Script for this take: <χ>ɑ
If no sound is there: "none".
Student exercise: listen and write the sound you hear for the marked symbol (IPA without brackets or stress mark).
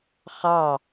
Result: χ